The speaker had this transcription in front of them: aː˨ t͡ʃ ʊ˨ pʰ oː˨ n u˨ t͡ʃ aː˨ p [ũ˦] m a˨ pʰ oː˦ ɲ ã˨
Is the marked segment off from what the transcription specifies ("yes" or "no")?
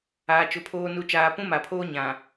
no